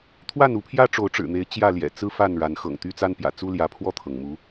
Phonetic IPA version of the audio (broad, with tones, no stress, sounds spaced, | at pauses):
t̪ʰ w a˥˨ n u˨˦ pʰ j ä˦ ʈ͡ʂ o˨˦ ʊ̯ ʈ͡ʂ ɻ̩˨˩ n̪ e˨˦ ɪ̯ t͡ɕ j ä˥˨ l j ɛ̰˨˩ t͡s ɹ̩˦ f a˥˨ n ɻ a˨˦ n x ɤ̰˨˩ ŋ t̪ y˦ t͡s a˦ n p j ä̰˨˩ t͡s u˦ l j ä˨˦ pʰ w ɔ˥˨ t̪ʰ ɤ˩ ŋ m u˨˦